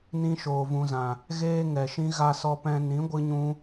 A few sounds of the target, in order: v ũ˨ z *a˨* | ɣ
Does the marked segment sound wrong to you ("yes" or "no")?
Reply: yes